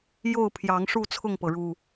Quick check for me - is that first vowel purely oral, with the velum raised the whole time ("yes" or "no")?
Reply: yes